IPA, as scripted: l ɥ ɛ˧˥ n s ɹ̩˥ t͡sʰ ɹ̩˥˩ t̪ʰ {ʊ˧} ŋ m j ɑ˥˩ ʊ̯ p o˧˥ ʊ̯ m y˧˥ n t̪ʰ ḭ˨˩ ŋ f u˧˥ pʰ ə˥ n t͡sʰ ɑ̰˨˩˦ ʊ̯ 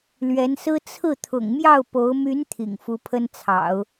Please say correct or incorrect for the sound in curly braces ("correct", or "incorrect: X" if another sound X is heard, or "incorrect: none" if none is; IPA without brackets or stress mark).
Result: incorrect: ʊ̰˨˩